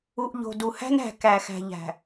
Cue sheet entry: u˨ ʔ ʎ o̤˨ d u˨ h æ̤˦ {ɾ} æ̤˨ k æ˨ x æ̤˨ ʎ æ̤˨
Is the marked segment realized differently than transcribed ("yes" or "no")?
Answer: yes